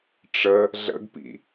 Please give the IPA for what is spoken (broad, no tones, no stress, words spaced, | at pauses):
ʈ͡ʂə | ɮə̰ɡpḭ